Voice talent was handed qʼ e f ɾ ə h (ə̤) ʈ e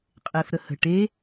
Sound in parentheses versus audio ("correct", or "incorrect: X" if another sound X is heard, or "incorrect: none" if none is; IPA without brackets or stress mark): correct